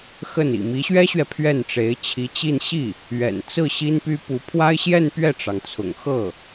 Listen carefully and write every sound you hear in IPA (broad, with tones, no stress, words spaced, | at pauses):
xə˥˩nḭ˨˩ mi˧˥ɕɥɛ˥ɕɥɛ˨ pʰɥɛ˥˩nʈ͡ʂe˧˥ɪ̯t͡ɕʰi˧˥t͡ɕi˥˧n ɕi˥˩ | ɥɛ̰˨˩nt͡sɹ̩˥˩ ɕi˥npy˥pu˧˥ pʰwa˥ɪ̯ɕjɛ˥˧n pɥɛ˥˩ʈ͡ʂɑ˩ŋt͡sʰʊ̰˨˩ŋxɤ˥˩